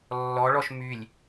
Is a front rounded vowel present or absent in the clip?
present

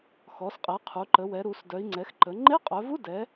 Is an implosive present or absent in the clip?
absent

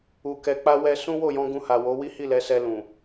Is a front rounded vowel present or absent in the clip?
absent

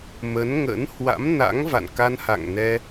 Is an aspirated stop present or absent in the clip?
absent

